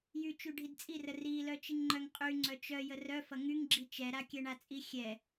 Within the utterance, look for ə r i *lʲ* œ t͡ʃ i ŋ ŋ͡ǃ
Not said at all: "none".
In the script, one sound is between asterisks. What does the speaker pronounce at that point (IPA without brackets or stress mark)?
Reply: l